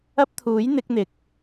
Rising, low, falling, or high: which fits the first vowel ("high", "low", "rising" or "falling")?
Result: high